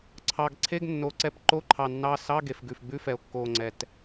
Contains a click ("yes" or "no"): yes